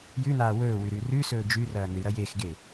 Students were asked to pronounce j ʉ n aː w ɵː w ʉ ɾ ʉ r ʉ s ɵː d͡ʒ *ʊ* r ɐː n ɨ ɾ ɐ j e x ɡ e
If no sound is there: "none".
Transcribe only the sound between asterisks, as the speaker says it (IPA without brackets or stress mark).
ʉ